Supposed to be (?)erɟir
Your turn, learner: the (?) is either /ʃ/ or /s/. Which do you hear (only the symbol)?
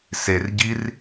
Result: s